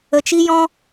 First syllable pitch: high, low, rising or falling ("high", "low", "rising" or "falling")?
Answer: low